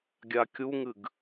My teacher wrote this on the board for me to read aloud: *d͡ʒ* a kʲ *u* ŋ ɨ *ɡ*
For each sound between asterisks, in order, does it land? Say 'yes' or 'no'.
no, yes, yes

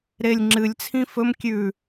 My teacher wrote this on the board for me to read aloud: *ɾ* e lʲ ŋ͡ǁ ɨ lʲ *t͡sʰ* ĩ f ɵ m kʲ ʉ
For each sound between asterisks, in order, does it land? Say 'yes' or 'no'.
yes, yes

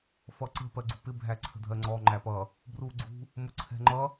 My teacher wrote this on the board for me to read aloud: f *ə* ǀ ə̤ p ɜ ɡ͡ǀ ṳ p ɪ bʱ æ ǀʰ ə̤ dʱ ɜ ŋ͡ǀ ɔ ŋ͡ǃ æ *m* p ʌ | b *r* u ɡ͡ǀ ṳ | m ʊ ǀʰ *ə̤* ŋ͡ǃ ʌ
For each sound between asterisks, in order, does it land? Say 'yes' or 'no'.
no, no, yes, no

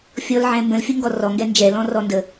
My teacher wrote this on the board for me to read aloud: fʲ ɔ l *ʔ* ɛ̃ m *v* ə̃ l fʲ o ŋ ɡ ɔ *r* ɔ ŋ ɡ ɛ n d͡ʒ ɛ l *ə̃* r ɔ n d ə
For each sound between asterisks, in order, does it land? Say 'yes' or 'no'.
no, no, yes, no

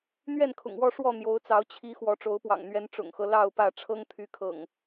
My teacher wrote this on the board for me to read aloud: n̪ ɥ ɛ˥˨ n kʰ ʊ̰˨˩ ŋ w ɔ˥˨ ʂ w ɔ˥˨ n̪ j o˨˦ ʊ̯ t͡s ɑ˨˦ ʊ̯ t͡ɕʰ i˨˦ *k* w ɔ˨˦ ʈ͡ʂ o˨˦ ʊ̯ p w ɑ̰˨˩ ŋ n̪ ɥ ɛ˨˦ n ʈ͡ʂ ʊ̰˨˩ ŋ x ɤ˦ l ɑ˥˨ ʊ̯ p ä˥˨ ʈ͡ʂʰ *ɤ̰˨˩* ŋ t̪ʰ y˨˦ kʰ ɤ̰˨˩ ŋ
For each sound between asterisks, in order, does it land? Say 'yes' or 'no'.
no, no

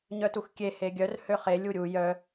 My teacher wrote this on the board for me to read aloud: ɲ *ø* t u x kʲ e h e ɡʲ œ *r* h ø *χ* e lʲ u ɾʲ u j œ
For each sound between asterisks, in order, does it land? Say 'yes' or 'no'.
no, yes, yes

